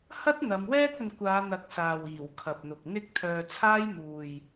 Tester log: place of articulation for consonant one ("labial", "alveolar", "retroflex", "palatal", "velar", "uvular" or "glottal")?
glottal